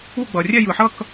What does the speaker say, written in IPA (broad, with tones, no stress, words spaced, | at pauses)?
u˥˧ɡ͡bʌ˩ rʲɛ˥˧jɯ˩ħʌ˥˧k